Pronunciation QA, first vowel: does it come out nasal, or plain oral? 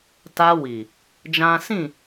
oral